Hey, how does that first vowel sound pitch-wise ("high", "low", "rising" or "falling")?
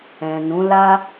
low